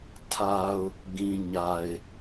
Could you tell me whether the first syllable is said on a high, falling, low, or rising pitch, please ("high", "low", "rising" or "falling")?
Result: low